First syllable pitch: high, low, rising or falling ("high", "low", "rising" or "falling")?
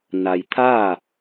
low